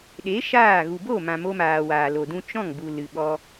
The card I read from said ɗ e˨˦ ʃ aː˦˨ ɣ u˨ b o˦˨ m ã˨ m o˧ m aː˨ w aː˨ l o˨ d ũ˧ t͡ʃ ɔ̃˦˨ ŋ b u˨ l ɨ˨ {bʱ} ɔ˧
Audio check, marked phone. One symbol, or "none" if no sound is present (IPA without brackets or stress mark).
ɓ